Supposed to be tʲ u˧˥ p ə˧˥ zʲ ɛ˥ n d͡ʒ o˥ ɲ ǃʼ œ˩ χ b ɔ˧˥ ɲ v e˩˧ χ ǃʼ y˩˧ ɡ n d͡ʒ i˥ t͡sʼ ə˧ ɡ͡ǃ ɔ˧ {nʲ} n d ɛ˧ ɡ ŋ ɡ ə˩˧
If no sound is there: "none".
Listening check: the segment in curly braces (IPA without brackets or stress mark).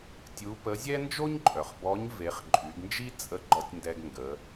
tʲ